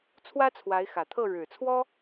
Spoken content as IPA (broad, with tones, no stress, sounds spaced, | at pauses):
t͡sʰ w ä˥ t͡sʰ w a˧˥ ɪ̯ x ä˨˩ t̪ʰ ɤ˥˩ ɻ ɻ̩˨˩ t͡sʰ w ɔ˥